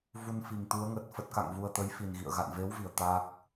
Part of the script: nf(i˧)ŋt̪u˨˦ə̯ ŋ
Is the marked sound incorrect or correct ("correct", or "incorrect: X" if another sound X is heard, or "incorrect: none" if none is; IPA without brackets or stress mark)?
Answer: incorrect: i˨˩